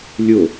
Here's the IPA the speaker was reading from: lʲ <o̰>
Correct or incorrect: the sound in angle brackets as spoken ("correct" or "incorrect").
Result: incorrect